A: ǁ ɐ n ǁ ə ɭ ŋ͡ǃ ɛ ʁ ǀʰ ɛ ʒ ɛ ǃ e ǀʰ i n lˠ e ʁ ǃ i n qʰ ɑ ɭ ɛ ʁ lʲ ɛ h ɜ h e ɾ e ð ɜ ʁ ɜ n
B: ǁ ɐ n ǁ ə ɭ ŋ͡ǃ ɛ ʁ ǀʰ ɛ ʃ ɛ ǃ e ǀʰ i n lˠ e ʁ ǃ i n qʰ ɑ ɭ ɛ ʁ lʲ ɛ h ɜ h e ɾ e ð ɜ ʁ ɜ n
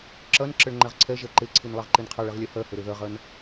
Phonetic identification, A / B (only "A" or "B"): A